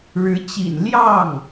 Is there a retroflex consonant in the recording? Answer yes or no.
yes